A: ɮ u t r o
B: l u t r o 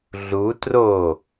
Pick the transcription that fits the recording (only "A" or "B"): A